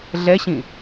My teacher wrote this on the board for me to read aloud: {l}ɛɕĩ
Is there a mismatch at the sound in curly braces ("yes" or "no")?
yes